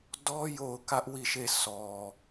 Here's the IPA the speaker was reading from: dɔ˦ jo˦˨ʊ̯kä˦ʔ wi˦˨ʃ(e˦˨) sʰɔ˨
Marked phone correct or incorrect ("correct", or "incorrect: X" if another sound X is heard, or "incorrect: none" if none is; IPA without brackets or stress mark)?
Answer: correct